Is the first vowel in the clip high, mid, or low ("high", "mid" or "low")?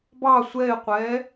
low